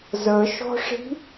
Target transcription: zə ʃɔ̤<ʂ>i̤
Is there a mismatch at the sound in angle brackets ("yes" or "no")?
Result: no